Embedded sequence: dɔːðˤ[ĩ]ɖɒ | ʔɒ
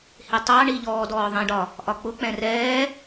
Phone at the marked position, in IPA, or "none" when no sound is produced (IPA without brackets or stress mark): ĩ